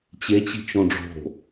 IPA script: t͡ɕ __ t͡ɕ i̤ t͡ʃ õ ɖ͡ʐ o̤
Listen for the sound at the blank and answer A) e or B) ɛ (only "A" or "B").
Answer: A